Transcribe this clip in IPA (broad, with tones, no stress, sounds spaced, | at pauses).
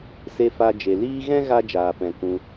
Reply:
s e˦ f a˦ d͡ʒ e˧ l iː˦ ɣ ɛ̃˦ ɣ a˧ d͡ʒ aː˨ p ɛ̃˨ k ũ˧